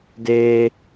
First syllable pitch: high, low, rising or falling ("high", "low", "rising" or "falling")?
high